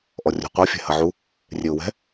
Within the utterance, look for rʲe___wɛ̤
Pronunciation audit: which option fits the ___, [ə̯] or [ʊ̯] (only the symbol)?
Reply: ʊ̯